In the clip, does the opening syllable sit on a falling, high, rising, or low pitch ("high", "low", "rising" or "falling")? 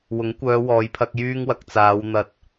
rising